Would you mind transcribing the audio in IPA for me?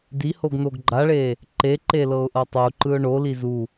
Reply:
dihoɡnoɡ ɡ͡ǃaɭe | ǃeǃelɤʊ̯ʔɤ tˤuǃɯʊ̯ ɳoli zu

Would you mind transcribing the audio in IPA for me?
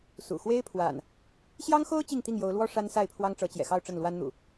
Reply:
sṵ˨˩xwe˦ɪ̯pʰwa̰˨˩n | ɕjɑ˦ŋxo˦ʊ̯ t͡ɕi˥˨ŋt̪i˥˨ŋ jo˨˦ʊ̯lwɔ˦ ʂa˦nsa˥˨ɪ̯pʰwɑ˦ŋ ʈ͡ʂɤ˨˦t͡ɕjɛ̰˨˩xɑ˥˨ʊ̯ ʈ͡ʂə˥˨nlwa˦nn̪ṵ˨˩

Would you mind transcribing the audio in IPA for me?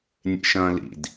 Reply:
nʲḛʃɐ̃ːlḭd

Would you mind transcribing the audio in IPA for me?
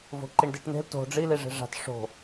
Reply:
vo̤ǃiɳdiʈn̪e̤l to̤ ɖ͡ʐi liʐe̤ʐa̤t ʂo̤

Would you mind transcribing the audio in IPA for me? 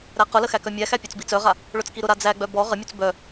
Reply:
ɾæqʊlə xækœmʲæxæ pʲɔt͡sbit͡sœʁa | ɭʊt͡skiɾʊɾa d͡zæɡ͡bœ bɔ ʁəmʲut͡s bœ

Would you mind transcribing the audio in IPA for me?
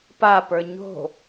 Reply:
papə˞ ɲo̤

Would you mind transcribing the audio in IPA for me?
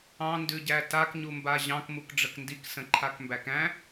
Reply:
ɑ̃ndʉɟæ takɲumba ʑɑ̃k mukɖ͡ʐəkndik sə̃ǃʰakmbækæ̃

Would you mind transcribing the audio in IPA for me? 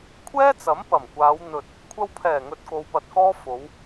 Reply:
kʷʰɛː˥t͡sɐ˨˥m pɐ˨˩mkʷaː˨˧w n̪ɵ˨t̚ | kʷʰɐ˧wpʰɛː˨˩ ŋɵ˧t̚ko˧wpɐ˧t̚kɔː˥ fo˨˧w

